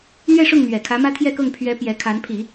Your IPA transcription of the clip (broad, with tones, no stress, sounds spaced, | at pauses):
n̪ ɥ ɛ˥˧ ʂ ʊ˥˩ ŋ n̪ ɥ ɛ˨˩ kʰ ä˧˥ m ä˥ t̪ʰ j ɛ˥˧ k ɤ˥˩ ŋ pʰ ɥ ɛ˧˥ p j ɛ˧˥ kʰ a˧˥ n pʰ i˨˩˦